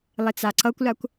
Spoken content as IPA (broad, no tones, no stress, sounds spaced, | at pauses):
lˠ ɪ t͡s a ǀ ʌ kʷ l a kʷ